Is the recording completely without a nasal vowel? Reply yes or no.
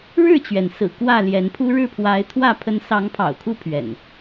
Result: yes